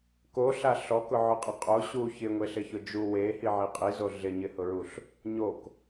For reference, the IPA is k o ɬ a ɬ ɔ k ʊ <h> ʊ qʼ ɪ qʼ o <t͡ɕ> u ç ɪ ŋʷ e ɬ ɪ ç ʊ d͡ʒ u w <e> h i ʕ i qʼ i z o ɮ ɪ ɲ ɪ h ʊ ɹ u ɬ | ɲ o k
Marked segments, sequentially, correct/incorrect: incorrect: ʕ, incorrect: ɕ, correct

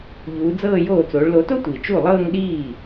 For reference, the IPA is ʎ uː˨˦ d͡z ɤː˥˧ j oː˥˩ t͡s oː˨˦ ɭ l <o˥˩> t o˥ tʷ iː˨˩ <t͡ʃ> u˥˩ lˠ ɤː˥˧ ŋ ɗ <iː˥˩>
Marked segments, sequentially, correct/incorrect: incorrect: o˨˦, correct, correct

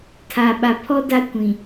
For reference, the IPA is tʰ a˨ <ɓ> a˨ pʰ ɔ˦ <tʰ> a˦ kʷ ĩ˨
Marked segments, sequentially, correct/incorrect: correct, incorrect: d

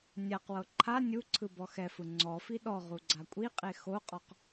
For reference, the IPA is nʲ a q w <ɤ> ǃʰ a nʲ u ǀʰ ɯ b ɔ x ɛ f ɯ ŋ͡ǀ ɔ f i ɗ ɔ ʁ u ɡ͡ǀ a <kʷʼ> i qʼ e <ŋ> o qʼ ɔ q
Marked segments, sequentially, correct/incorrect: correct, correct, incorrect: x

